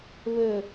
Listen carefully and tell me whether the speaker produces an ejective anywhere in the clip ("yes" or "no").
no